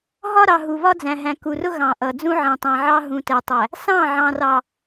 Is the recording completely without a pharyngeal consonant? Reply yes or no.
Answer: no